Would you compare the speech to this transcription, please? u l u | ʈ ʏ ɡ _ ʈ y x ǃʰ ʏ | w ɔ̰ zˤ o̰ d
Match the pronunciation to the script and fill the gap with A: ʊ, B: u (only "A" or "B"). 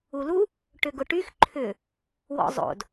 A